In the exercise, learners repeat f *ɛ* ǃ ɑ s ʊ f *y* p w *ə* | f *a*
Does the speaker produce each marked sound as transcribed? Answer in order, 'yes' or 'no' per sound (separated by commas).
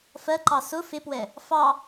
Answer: no, no, no, no